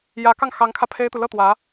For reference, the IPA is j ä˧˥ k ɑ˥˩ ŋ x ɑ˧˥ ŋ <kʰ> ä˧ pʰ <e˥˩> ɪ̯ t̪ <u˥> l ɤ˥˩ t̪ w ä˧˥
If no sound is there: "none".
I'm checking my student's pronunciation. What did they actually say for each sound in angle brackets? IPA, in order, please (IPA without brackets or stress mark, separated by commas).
kʰ, e˥, u˨